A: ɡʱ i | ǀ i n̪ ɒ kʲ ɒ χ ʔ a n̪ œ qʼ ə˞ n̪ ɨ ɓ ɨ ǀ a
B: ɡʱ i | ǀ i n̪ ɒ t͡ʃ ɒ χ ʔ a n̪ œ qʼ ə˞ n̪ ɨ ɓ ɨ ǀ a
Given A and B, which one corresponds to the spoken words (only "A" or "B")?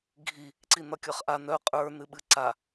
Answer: A